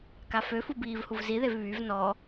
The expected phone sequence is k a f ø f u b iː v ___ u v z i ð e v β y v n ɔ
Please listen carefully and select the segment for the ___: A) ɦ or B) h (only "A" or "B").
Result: B